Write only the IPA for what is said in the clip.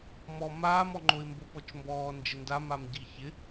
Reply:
mɔ maːmɔŋ͡ǃoɪ̯ mbopɔt͡ʃmbɔː nd͡ʒɪndamam ɟiçɪ

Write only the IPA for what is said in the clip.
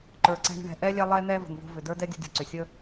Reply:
ǃə˞˨ǀɛ̤˦ ɳə̤˦ɳɛ̤˨ ʔɛ˥lʲɛ˦ lˠɛ˦n̪ɛ˦ və̤˨ŋvo̤˥ vʏ˨ də˞˥dɛ˥ dʲə̤˥dʲo̤˥ ǀʏ˩sʲə˥

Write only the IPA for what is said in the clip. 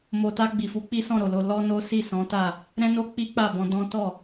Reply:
mo˨ta˧ ɡ͡bi˨fu˧k͡pi˦ sɔ̃˦˨ɾo˨lo˧ lɔ˦no˦ si˦˨sɔ̃˨˦ta˦˨ | ɾɛ̃˦no˦ k͡pi˦k͡pa˦˨bɔ̃˧ dɔ̃˦ tɔ˦˨

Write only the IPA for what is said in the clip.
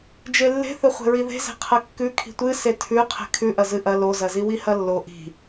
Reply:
d͡ʒelːe̤θɵ χʷe̤ɹiðe̤ze̤ qʰɐkːʉ kʰi̤tʷɨ setʰʉ qʰe̤kʰʉʔɐ zɨʔɐ lozɐziwi hɐlːo ʔi̤

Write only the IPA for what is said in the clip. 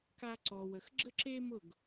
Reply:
ka˧ǀɔ˨ wə˨xɡ͡ǁə˦ǁe˦mʊ˦˨ɡ

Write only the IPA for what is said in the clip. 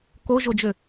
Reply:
koʒod͡ʒø

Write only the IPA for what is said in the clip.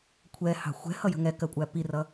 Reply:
kʷʰɛhɑ̤ xʷɛ̤hʌjə̤ ŋɛkɜkʷʼæ pirʌ

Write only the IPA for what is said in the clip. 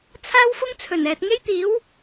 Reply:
t͡sʰaː˥wfʊ˥ŋt͡sʰɵ˨˩nɛː˨t̚ ŋe˥jt̪iː˨˥w

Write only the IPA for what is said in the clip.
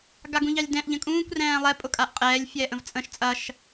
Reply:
ɡaɡũʎɑlʲdɛ̃ʔ ʎə̃kʼũːkʷ rɛ̃ːlˠɛ pʼʊkʼaʔqʼɛːlʲ fʲɛːʔə̃vt͡sʼə̃ʃ t͡sʼɐʃ

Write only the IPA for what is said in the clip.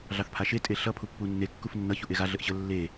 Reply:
ɮɑθpʰaʃe tʼeɬʌ pʰupːunːe kːufnːʌ çuʔeɣa ɮəʔɕə lːe

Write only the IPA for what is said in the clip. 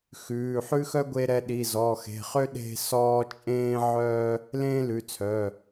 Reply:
xʉː˩˧˩ħʉ˥xœ˥ ɡʷe˥ɾɛ˥ ɗi˩˧˩zɔ˩˧˩xe̤˩˧˩χø˥ ɗe̤˥ sɔː˥ t͡ʃʼẽː˥ʕœː˥ | lẽː˥lʉ˩˧˩t͡sʰœː˩˧˩

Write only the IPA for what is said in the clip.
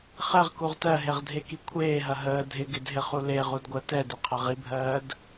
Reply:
χɛʁkuʁ tɜɦeʁdʱeki kʷʰeːɦɐ ɦəː dʱɪɡɪdɦɪχu leʁudɡʷɜ tɛdɪqʰɐʁ ibʱɜːd

